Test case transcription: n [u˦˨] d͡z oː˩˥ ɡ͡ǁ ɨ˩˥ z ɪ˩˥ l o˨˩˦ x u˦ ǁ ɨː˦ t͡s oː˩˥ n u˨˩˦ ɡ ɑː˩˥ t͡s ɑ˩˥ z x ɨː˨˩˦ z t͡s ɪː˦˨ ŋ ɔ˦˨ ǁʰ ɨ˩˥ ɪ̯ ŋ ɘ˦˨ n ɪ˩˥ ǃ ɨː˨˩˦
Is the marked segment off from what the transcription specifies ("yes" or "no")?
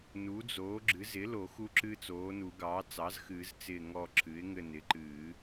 yes